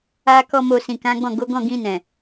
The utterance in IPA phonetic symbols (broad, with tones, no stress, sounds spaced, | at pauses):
a˦ k ɔ˦ m o˧ s ĩ˨ k ã˨˦ ɡ͡b ɔ̃˦˨ ɡ o˨˦ ɡ ɔ̃˦˨ ɡ ĩ˧ n ɛ̃˨